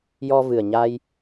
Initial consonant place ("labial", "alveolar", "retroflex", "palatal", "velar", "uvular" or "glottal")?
palatal